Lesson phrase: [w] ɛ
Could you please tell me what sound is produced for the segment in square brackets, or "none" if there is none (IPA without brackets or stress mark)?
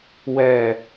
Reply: w